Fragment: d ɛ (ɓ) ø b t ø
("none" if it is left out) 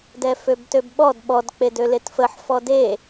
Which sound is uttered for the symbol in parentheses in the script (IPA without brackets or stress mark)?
f